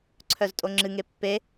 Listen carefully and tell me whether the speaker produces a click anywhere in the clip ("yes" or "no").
yes